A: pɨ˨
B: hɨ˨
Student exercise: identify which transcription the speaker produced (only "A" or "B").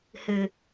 B